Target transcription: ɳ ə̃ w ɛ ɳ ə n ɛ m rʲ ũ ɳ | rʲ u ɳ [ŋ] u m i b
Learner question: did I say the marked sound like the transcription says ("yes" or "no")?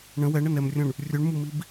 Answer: no